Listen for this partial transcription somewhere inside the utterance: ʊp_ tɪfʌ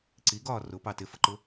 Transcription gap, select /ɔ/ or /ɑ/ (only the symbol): ɑ